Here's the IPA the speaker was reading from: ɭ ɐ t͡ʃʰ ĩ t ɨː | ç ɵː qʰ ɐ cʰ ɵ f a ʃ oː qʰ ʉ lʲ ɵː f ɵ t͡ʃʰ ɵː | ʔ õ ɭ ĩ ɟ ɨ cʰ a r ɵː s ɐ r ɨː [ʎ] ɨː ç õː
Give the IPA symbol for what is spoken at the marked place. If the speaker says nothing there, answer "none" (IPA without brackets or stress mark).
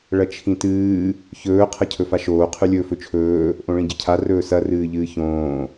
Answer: ʎ